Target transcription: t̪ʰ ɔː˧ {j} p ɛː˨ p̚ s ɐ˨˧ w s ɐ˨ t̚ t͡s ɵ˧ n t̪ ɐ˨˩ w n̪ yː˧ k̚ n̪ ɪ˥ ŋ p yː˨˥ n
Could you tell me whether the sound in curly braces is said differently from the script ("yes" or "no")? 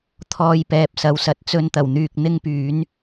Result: no